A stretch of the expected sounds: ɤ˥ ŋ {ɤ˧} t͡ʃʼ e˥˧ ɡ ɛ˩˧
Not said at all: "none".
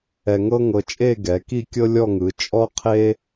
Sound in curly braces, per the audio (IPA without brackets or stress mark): ɤ˧